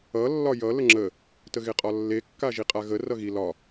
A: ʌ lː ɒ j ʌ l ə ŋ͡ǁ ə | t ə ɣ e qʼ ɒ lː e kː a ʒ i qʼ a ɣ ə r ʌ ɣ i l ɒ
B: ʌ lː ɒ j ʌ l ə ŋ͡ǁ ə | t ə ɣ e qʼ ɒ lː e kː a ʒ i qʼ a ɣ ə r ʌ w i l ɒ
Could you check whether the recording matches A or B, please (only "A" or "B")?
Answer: A